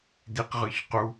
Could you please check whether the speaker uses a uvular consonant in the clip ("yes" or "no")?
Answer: yes